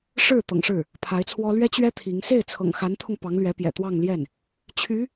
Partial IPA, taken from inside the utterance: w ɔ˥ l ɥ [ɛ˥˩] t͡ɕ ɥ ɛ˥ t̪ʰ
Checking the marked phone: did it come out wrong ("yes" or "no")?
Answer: yes